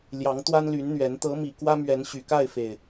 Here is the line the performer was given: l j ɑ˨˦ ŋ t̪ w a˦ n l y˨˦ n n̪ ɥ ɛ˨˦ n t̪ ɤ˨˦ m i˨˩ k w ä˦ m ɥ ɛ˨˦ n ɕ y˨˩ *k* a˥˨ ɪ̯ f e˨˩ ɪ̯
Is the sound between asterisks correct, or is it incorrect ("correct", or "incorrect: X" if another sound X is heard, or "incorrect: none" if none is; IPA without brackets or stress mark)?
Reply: correct